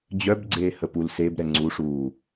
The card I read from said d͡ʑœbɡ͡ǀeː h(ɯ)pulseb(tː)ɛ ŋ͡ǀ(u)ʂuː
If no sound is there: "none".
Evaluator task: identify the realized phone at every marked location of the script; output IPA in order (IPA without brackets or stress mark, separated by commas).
ə, ɾ, u